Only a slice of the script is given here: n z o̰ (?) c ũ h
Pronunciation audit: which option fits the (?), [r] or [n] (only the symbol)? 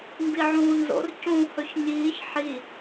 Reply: r